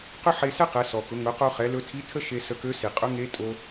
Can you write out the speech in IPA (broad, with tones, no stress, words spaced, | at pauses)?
qʏ˥ħe˧sɛ˥qɛ˩˧ sɔ˩kʊ˩˧ ŋʊ˩˧qo˧χɛ˩˧lɵ˧ tʰi˧˥tʰə˥ ʃe˧ sə˧kø˧˥si˩ qʼɵ˧˥ŋe˧˥ tʼo˧